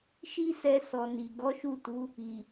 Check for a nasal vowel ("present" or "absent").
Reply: absent